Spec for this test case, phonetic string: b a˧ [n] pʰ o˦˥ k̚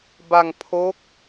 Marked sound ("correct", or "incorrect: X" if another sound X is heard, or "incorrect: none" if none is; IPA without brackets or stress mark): incorrect: ŋ